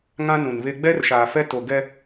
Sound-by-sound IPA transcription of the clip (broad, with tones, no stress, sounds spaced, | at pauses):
ŋ ã˦ n ũ˨ n β e˦ ɡ͡b ɛ˦ r ʃ aː˨ f ɛ˦ t o˨ ɡ ɛ˦